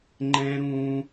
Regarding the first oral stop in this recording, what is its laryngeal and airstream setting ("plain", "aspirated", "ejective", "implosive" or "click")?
click